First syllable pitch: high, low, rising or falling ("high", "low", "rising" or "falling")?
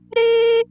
high